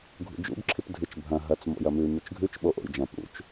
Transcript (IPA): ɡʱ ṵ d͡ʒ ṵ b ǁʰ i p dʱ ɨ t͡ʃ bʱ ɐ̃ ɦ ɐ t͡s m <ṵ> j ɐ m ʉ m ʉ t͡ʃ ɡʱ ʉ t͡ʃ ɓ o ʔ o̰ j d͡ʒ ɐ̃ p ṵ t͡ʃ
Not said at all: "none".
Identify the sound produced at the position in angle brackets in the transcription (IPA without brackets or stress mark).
o̰